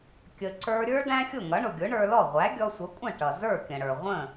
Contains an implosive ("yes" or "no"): no